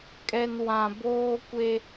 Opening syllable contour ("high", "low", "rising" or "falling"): low